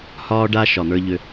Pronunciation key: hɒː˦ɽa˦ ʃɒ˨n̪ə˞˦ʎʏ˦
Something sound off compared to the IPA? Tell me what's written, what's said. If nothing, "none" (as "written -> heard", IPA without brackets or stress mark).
ɽ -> ɖ